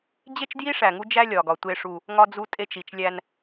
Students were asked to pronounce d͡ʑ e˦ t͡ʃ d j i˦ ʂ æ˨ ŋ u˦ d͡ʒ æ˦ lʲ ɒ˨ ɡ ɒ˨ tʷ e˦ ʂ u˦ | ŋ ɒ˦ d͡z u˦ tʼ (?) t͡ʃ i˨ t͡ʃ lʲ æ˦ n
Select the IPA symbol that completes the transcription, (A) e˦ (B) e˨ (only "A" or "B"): A